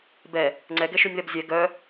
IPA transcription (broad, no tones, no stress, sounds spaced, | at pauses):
b ɛ | ŋ͡ǀ ɛ ɡ ɛ ʃ ʉ nʲ ð ɛ b zʲ ɛ ɡ œ